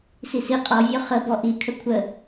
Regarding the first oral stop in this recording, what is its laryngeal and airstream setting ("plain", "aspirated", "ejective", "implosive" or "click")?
ejective